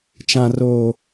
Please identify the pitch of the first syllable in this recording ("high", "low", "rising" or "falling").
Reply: high